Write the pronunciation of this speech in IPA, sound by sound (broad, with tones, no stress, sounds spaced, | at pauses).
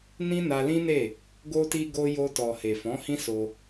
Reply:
n ĩ˦ n a˧ l ĩ˦ n e˦˨ | ɡ o˧ t i˧ ɡ o˧ j o˧ t ɔ˨ h e˨ f ɔ̃˨˦ h ĩ˦ s o˧